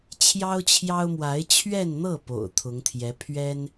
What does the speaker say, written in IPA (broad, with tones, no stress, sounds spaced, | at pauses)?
t͡ɕʰ j ɑ˥ ʊ̯ t͡ɕʰ j ɑ˥ ʊ̯ m w a˧˥ ɪ̯ t͡ɕʰ ɥ ɛ˥˧ n n̪ ɤ˥˩ p o̰˨˩ ʊ̯ t̪ʰ ʊ˧˥ ŋ t̪ʰ j ɛ˧˥ pʰ ɥ ɛ˥ n